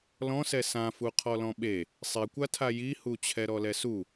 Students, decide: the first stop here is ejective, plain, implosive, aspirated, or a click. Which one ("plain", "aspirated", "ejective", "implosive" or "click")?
aspirated